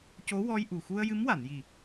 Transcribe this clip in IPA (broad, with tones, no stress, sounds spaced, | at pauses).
c o˧˥ w ɔ˧ j ʔ u˨˩ x u˧ ə̯ j ɨ˧˥ m w a˨˩˨ n j i˨˩